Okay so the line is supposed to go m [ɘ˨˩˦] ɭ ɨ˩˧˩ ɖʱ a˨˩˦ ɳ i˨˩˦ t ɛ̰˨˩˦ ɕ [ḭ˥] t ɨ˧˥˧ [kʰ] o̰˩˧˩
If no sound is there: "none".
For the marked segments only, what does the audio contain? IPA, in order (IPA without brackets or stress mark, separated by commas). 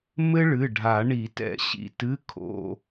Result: ɘ˥, ḭ˩˧˩, kʰ